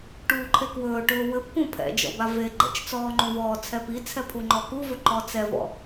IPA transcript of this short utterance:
ʈ uː ǃʰ e k w ɵː ʈ ɵː w ɘ p k ũ pʰ ɛ̰ d͡ʒ ɔ̰ b a v e ɡ͡ǃ ɛ̰ t͡ʃ t͡s ɔː ŋ͡ǃ ũ v ɔː t͡sʰ ɛ p i t͡sʰ ɛ pʰ u ŋ͡ǃ ɔ k u v ɵ ǃ ɔ t͡s ɛ v ɔ̰

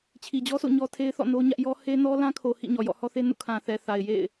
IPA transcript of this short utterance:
t͡ɕʰ i˨ d͡ʑ ɔ˦ s o̰˦˨ ɲ ɔ˦ tʰ e˦ ɪ̯ θ ɔ̰˦˨ n o˦ ɲ ä˦ ʔ j ɔ˦ h e˦ n ɔ˦ l ã˦ kʰ o˨ h ḭ˦˨ ɲ ɔ˨ j ɔ̰˦˨ h ɔ˦ θ e˦ n ṵ˦˨ kʰ ã˨ θ ɛ˨ θ a˨ ɪ̯ j ḛ˦˨ ɪ̯

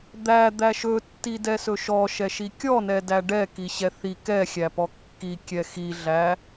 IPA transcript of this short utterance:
d̪ æ d̪ æ ʃ ɵ tː i d ɛ s ɵ ʃ ɔ ʃ ɛ ʃ i kʲ ɔ n ɛ d æ ɖ ɛ k i ɕ ɛ θ i k ɛ xʲ æ p ɔ kː i kʲ ɛ x i ɮ æ

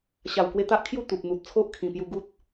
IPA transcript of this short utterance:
ɕ a˨˩ w k w e˧ t̪ a˦ ʔ kʰ j u˥˧ t̪ u˨ p̚ n̪ u˨ t̚ t͡sʰ o˦ ʔ kʰ ĩ˨˩ p j u˧ ɡ u˦ t̚

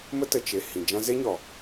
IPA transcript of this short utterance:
m ə˦ t ə˨ t͡ʃ e˨ h ĩ˨ d͡ʒ ã˦ z e˦ ɲ ɔ˨

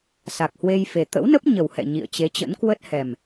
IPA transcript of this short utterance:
s a˨˩ k̚ h w e˧ j f e˨˩ t̪ ə̰˧˥ w n ə˦˥ p̚ ɲ ə˨˩ w h ɛ̰˧˨ ɲ ḭ˧˨ ə̯ t͡ɕ e˨˦ t͡ɕ ə̰˧˥ n k w ə˦˥ t̚ h ɛ˨˩ m

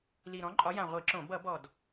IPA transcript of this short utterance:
l i˨˩ ɾ ɔ̃˨˥ ǃʼ ɒ˨˥ j ã˨˩ ʁʷ i˧˩˧ ǁ õ˧˩˧ b ʌ˧˩˧ b ɔ˨˩ d

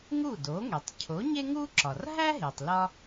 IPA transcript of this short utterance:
ŋ u˥˩ d o˩˥ ŋ e˩ tˤ cʰ o˩˥ ɲ e˥ ŋ u˥ ǁ ɒ˩ r ɦ æ˥ ɦ e˩ tˤ l ɒ˧

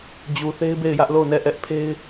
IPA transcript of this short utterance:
d͡ʑ u˨ θ e˦ ɪ̯ b e˦˨ ɪ̯ j ä˦ ʔ l o˦˨ ʊ̯ n ɛ˦˨ ʔ ɛ˦ ʔ pʰ e˦ ɪ̯

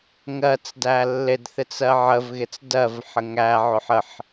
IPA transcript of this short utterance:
ŋ ɜ t͡s d æ lː ɪ d θ ɪ t͡s ɜ ʕ ə v ɣ ɪ t͡s d ɜ v ħ ə ŋ æ ʕ ʊ ħ ə ħ

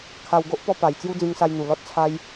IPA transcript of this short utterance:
kʰ a˧ w ɡ o˦ ʔ p ɔ˧ p a˨˩ j t͡s j u˦ d͡z ĩ˧ ŋ s a˧ j n̪ u˨˩ l ɔ˦ t̚ t͡sʰ a˦ j

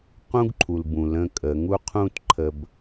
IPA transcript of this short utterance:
q ũ˦ ɡ ǃʰ u˨ l b ũ˨ l ə̃˦ kʼ ə˨˦ ŋ u˦ qʰ ũ˦ t ǃʰ ə˨ b

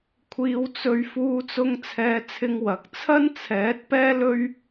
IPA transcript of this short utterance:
kʷʰ iː˧ w t͡s ɵ˧ ɥ f uː˧ t͡s ʊ˧ ŋ t͡sʰ ɛː˧ t͡sʰ ɪ˧ ŋ w ɐ˨˥ k̚ t͡sʰ ɐ˥ n t͡sʰ ɛː˨˥ t̚ p ɛː˥ l ɵ˥ ɥ

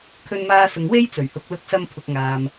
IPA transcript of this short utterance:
kʰ ɵ˧ n m aː˧ s ʊ˨ ŋ w e˥ j t͡s ɵ˨˩ ɥ h ʊ˨˥ k̚ l ʊ˨˥ k̚ s ɐ˧ m pʰ ʊ˨ k̚ ŋ aː˨ m

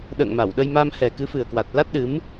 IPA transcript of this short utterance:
ɗ ə̰ː˧˨ ŋ m a˧˩ w ɗ ə˧ j m a˧ m h ɛ˨˩ k ɨ˨˦ f ɨ˨˩ ə̯ k w a˨˩ t̚ l a˦˥ t̚ ɗ ɨ˨˦ m

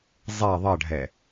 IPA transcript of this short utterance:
zˤ ɛ ðˤ ʌ ɖʱ ɛ

